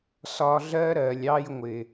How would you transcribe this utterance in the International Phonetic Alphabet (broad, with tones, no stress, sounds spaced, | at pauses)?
s ɒ˧ ɮ ɜ˦ ɾ ɜ˨ lʲ ɑ˧ j ŋʷ ɪ˨